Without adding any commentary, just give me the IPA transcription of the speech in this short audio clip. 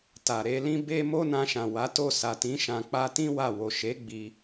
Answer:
t a˨ ɾ e˨˦ l ĩ˦ b e˦ m o˦ n ã˧ ʃ ã˨ w a˨˦ t o˦˨ s a˨ t ĩ˨˦ ʃ ã˧ k͡p a˦ t ĩ˦ w a˦˨ w o˨ ʃ e˨˦ ɡ͡b i˧

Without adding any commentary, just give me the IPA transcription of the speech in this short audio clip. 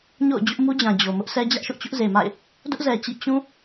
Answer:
ɲ o̰˦˨ ʊ̯ d͡ʑ ʊ˦ ʔ m u˦ d͡ʑ ã˨ d͡ʑ o˨ m ʊ˦ ʔ s ɛ˦ d͡ʑ ä˦ ʔ ʃ ʊ˦ ʔ t͡ɕ ʊ˦ ʔ z e˨ m a̰˦˨ ɪ̯ | d ʊ˦ ʔ z ɛ˨ t͡ɕ ḭ˦˨ t͡ɕ ũ˦

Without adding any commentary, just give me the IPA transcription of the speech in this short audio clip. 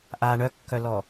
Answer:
ʔ a ɳ œ kː œ l ɔ

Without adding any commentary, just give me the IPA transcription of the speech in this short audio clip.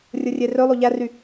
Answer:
rʲ ɯ rʲ e r ø lˠ o ʎ æ r y

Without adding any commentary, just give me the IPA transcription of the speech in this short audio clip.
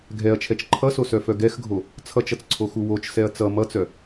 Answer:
ɡʱ ɛ ɐ̯ t͡ʃʰ ɛ t͡ʃ ǃʰ ʌ s o s œ f œ ɡ ɛ x ɡʱ o | t͡sʰ ʌ t͡ʃ ʌ t͡s ǀʰ o x u w o t͡ʃ s ɛ ɐ̯ t͡s ʌ m ʌ t͡s œ

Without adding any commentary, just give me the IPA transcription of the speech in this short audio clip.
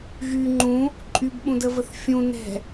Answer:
ɣ y ŋ͡ǃ ũ | ǃʼ y b ɓ ũ d ə v ə θ fʲ ũ n ɛ̤

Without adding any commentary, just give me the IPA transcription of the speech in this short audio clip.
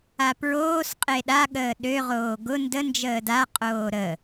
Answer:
a p ɹ oː s qʼ e ɗ a ɠ əː ɗ ø ʁ oː ɡ ʊ n d ə n d͡ʒ əː d a qʼ oː ɾ ə

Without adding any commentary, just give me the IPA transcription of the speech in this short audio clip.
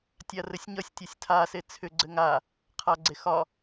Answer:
tʲ a r ɘ sʲ ɲ ʌ sʲ tʲ ʌ sʲ tʰ a s e t͡sʰ ʏ ɡ͡ǀ ɘ ŋ a | qʰ a ɡ͡ǀ e x ɒ

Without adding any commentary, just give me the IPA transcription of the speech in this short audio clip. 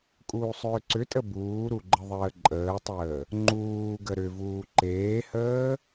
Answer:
kʼ uː sˤ ʏː ǀ ʏ tʼ ə b uː ɾ u ɡ͡ǃ ə ðˤ əː ǃʼ əː tˤ əː | ŋ͡ǃ uː ɡ ə ɾ ʏ v uː ǃ eː h əː

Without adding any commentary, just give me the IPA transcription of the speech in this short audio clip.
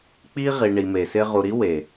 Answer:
k͡p i˦ ʁ i˨ ɳ i˨ m e˨ s ɪ˦ ʁ u˨ ɾ i˦ w e˨

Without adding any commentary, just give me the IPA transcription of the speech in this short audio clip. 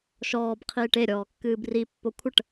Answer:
ʃ ɔː b qʰ iː ʈ e ɾʲ ɔː kː ɨː b r i pː o kʷʰ ə ʈ

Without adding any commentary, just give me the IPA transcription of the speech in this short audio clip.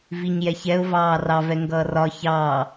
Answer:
v i ɲ j ɛ ç ɛ ʊ̯ v ɑː r ɑ v ɛ ŋ ɡ ʌː r ɒ ç ɑː

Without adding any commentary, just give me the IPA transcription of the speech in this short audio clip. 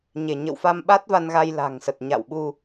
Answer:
ɲ e˧˩ ɲ ə̰˧˨ w f a˧ m ɓ a˦˥ t̚ v a˧ n ɣ a˧ j l a̤˨˩ ŋ s ə˨˩ t̚ ɲ a̰˧˨ w ɓ u˧

